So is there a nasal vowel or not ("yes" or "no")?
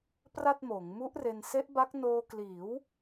no